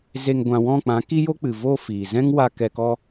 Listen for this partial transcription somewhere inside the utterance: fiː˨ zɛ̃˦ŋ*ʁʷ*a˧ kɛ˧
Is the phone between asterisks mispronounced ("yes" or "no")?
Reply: yes